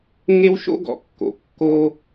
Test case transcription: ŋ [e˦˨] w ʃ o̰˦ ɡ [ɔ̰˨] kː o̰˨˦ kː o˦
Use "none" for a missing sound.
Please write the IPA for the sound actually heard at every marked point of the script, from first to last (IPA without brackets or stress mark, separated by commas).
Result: e˦, ɔ̰˨